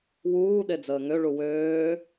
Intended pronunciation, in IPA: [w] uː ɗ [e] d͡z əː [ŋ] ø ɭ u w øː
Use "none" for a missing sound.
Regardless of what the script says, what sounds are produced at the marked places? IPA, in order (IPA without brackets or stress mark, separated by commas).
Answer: w, e, ŋ